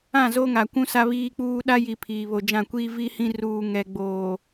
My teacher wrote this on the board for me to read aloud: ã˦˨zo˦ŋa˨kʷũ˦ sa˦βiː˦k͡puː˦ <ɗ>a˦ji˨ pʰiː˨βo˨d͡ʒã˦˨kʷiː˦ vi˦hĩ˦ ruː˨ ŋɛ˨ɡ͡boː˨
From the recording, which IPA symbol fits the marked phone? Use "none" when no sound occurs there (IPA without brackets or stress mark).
ɗ